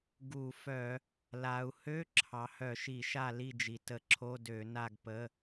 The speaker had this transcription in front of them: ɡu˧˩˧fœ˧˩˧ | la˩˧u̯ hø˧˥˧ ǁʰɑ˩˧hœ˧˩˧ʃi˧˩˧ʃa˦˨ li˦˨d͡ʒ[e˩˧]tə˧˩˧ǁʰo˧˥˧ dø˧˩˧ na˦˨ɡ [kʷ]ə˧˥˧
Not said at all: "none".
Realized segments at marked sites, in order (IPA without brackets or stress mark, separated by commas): i˩˧, p